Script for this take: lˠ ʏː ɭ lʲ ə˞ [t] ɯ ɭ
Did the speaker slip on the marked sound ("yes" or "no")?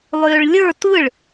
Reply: no